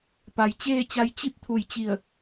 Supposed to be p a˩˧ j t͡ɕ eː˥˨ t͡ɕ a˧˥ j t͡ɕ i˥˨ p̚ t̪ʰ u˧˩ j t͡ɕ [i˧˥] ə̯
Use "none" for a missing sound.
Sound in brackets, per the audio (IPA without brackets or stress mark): i˧˩